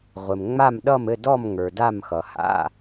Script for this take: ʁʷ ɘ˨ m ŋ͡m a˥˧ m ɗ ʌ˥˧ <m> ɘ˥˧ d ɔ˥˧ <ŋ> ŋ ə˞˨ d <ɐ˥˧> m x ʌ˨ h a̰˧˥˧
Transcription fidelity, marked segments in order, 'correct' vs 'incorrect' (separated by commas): correct, incorrect, incorrect